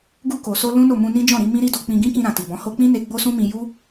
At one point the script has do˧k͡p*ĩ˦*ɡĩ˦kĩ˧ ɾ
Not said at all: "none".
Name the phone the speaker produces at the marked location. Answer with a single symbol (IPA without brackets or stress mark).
ĩ˧